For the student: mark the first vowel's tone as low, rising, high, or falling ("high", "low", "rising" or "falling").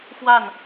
falling